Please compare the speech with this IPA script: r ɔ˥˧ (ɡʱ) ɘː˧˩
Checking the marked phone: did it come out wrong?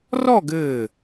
yes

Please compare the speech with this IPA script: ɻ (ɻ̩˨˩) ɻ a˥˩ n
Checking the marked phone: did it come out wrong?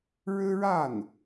yes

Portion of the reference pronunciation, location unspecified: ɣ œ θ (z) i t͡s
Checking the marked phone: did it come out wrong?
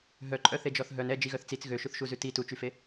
yes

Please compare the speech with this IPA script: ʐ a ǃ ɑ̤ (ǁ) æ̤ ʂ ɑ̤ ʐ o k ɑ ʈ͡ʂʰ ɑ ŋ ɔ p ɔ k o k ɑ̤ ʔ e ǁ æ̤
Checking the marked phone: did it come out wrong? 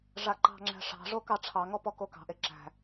yes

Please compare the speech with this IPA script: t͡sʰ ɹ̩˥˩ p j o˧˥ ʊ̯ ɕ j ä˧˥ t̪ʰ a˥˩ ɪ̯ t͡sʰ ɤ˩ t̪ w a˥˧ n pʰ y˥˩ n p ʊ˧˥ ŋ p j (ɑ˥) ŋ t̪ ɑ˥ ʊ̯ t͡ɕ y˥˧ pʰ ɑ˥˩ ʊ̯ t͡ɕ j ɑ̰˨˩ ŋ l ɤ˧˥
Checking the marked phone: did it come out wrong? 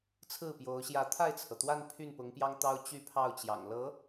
no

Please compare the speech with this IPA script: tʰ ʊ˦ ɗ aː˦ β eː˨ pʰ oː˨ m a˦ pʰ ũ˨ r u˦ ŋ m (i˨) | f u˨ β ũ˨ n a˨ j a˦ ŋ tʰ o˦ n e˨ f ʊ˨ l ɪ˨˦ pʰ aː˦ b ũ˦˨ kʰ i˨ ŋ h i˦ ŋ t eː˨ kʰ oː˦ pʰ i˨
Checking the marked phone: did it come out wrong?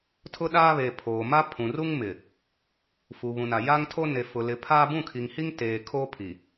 yes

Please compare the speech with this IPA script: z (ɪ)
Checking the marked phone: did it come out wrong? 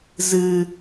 yes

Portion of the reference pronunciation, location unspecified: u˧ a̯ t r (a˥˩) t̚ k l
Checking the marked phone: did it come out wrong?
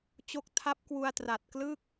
yes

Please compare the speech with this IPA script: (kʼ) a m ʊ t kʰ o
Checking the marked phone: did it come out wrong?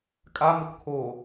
no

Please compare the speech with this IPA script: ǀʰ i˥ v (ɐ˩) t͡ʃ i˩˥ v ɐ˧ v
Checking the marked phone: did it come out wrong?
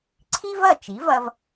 yes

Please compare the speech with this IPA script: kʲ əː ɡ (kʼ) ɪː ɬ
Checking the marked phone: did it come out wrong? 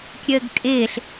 no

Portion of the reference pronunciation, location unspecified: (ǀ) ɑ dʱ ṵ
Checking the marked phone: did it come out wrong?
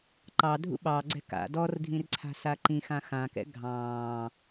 yes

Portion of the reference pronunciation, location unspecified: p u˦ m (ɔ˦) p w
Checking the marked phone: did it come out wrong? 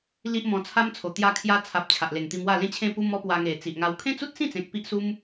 no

